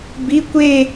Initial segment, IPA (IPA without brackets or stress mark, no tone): b